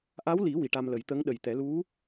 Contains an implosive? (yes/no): yes